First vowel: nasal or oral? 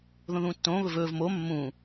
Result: nasal